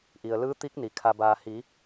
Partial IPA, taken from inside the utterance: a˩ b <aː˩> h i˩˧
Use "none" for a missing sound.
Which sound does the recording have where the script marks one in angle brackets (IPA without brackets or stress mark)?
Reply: aː˩